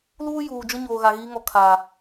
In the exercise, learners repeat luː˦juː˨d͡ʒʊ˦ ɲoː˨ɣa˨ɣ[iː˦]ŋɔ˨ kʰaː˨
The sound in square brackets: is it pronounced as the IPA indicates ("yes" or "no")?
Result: yes